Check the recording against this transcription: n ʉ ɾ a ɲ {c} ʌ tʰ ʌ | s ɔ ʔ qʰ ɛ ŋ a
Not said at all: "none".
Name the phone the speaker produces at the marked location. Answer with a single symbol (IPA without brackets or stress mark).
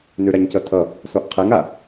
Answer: c